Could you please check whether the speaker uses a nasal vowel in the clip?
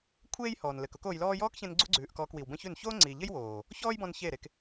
yes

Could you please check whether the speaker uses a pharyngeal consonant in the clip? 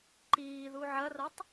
yes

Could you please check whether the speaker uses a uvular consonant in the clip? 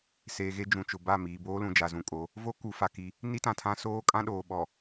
no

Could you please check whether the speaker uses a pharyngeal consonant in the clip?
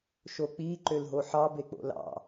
yes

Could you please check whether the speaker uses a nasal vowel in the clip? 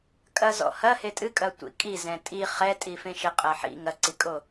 yes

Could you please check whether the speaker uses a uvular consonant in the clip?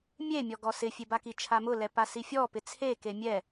no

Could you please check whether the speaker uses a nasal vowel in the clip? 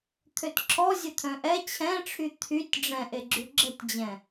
yes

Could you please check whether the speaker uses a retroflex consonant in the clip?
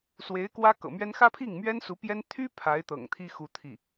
no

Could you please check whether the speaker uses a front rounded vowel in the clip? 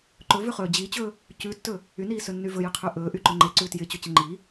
yes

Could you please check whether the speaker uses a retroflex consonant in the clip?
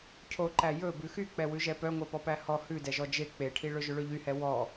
yes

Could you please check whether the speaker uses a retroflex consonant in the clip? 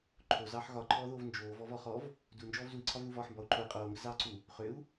no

